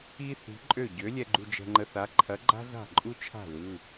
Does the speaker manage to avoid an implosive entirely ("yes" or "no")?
yes